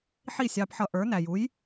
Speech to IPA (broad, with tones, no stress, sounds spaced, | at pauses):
ħ i˥˩ sʲ ɑ˧ p ħ ʌ˧ ʔ ə˞˩˥ n æ˩ j u˩˥ j